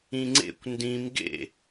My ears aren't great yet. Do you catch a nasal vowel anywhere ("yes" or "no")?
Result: yes